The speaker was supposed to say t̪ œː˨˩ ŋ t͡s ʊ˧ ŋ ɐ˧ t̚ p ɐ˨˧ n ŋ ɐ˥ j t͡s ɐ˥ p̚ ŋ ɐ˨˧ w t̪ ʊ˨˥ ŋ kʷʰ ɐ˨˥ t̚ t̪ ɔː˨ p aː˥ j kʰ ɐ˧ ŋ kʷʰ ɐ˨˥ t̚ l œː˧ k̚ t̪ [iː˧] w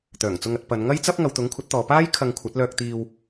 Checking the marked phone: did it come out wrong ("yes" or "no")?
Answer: no